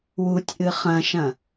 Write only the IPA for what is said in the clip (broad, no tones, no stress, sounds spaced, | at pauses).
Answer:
w u tʲ ʔ ɨ χ ɐ̃ ʃ ɐ̃